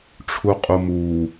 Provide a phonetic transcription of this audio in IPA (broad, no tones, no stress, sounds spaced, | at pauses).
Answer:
ʈ͡ʂʰ u qʼ u m u